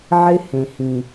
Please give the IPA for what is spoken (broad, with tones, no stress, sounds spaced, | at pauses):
ʕ ɪ˦ h ẽ˨ h ĩ˨